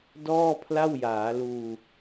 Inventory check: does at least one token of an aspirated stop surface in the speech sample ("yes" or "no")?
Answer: yes